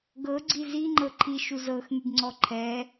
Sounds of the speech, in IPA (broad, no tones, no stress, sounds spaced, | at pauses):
ɡ ɤ ɡ͡ǀ i z i ŋ͡ǃ ɤ ǃʰ i ʃ u z ɤ x ŋ y ɡ ŋ͡ǀ ɔ ǃʰ ɛ